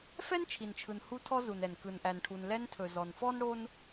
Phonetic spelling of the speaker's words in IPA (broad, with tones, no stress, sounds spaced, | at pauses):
f ɛ˥ n t͡ʃʰ i˩ n t͡ʃʰ ɯ˩ n h u˧ tʰ ɔ˧ z u˩ n ɛ˩ n k ɯ˩ n ʔ æ˩ n ʈʰ u˩ n l ɛ˧ n tʰ ɵ˩ z ɔ˩ n f ɔ˥ n ɽ o˥ n